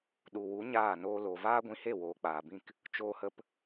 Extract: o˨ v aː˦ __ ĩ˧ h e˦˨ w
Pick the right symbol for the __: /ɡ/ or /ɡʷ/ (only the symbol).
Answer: ɡʷ